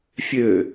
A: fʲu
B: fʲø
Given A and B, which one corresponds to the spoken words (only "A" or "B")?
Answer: B